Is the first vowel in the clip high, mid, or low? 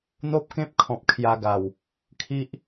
mid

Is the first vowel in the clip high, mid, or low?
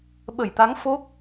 mid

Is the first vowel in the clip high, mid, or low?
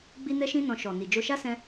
high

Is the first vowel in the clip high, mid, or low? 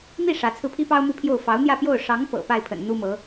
high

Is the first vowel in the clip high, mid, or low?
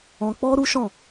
mid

